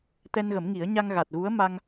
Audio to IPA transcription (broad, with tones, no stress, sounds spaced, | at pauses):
t̪ ɛ˧ n ɣ ə˨˩˦ m ŋ i˨˩˦ ə̯ ɲ a˧ ŋ ɣ a˨˩ t̚ ɣ u˧˥ ə̯ m a˧ ŋ